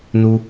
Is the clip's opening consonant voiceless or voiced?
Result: voiced